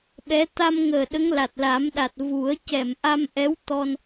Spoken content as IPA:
ɓɛ˧˥ t̪a˧mŋəː˨˩ ɗə˧˥ŋla˨˩t̚la˨˩˦mɗa˨˩t̚ vu˨˩˦ə̯ cɛ˨˩˨mʔa˧m ʔɛ˧˥wt̪ɔ˧n

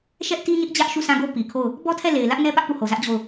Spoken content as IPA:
ʃɛ˦ʔti˦ɲɪ˦ʔ d͡ʑä˦ʔʃu˦˨sã˦˨ɡo˦ pi˨kʰo˦˨ʊ̯ | bɔ˦tʰɛ˦˨le˨ɪ̯ lä˦ʔnɛ˦ pä˦ʔpu˦˨ho˨zä˦ʔ d͡ʑo˦˨ʊ̯

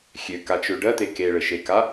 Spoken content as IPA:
xʲøkat͡ʃø ɖɜt̪e keɭɘʃeka

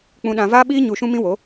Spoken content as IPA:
k͡pũ˧ɗã˧vaː˦ɓiː˦ ɲu˧ʃũ˦mĩ˦ wo˨˦

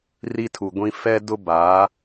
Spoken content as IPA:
ri˦tʰu˨ɡʷĩ˦ fɛ˦dʊ˦baː˨˦

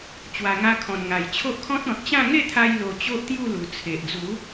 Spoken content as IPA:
t͡ɕwa˨˩ŋa˧kʰɔ̃˨˩n ŋa˨˩jt͡ɕʰo˦ʔkʰɔ̃˦t̚ ɔ̃˨t̚t͡ɕã˥˧ ŋe˥˧t̪ʰa˧j lo˧ t͡ɕo˦ʔt̪ju˥˧lu˨˩ t͡sʰe˨ʔd͡zu˨˦

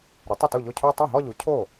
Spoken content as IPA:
ɾʊ˩˥tˤʊ˥˩tu˥˩ʎo˥˩ cʰo˥˧ tˤu˥˩ɦɔ˥˧ʎu˩˥ cʰo˥˩

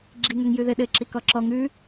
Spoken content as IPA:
ɡ͡ǁiŋ øŋjʉðɘ ɗɘ ǁikɔǁɔ ŋʉ

